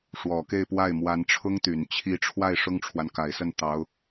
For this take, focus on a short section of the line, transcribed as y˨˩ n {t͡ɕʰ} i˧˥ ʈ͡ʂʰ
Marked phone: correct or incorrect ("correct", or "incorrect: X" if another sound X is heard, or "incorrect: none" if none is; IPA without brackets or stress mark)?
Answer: correct